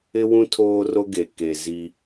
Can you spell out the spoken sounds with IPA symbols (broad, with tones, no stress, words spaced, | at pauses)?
ɪ˦wũ˦ tʰoː˦ro˦ɡe˨ ke˨ zi˦